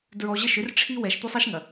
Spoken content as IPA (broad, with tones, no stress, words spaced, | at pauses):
dɹɔ˨ʑə˦˨ʃʏ˦rʈ͡ʂʰi˦ wɛ˨ʃ tʷɛ˦sˤi˦ʃŋɐ˨